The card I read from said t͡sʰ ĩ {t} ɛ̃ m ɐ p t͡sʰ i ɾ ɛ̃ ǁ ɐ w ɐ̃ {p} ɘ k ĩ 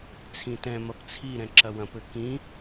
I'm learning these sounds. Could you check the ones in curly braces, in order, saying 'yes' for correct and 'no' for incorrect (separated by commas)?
yes, yes